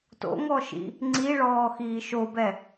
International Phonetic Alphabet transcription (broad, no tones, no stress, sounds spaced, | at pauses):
t o̰ ŋ ɔ ʃ ḭ | ŋ͡ǀ i ɭ ɔː x iː ʃ o b ɛ